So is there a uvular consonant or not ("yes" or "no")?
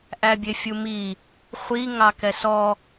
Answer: yes